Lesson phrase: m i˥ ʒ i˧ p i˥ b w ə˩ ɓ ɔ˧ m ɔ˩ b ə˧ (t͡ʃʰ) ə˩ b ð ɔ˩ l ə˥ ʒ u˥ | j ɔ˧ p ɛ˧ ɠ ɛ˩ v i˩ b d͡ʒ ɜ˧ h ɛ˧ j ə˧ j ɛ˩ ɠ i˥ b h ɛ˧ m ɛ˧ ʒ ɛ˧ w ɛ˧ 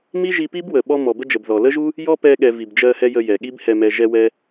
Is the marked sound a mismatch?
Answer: yes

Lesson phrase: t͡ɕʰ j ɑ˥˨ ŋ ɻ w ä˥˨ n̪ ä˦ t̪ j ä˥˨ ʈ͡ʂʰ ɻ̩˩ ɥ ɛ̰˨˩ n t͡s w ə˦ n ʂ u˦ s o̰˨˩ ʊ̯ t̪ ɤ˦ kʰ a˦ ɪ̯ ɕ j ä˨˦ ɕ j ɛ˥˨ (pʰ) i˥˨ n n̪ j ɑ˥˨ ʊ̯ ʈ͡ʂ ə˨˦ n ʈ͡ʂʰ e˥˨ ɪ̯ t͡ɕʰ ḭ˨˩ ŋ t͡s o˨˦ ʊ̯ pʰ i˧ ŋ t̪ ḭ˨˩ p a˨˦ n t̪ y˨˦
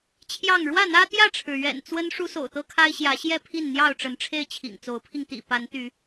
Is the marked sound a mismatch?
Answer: no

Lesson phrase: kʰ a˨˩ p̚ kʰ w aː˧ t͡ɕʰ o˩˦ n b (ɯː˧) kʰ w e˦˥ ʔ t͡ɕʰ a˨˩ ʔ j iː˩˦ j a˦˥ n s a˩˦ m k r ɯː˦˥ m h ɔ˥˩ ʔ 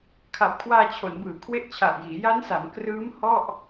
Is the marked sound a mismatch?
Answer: yes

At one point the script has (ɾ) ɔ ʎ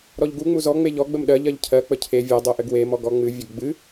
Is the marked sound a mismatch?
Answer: no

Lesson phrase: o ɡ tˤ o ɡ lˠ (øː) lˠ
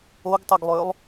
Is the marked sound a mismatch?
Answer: no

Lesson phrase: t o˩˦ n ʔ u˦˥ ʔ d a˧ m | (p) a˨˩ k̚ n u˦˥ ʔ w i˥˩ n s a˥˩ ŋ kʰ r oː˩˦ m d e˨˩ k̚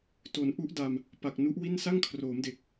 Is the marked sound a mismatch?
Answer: no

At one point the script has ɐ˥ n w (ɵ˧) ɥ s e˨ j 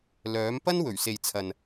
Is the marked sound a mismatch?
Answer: yes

